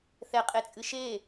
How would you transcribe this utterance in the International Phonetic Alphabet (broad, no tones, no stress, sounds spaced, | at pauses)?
θ ɛ qʼ e t͡sʼ ɨ ʃ e